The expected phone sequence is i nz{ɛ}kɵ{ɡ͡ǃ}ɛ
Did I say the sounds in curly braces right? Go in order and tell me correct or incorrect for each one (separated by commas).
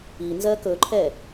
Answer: incorrect, incorrect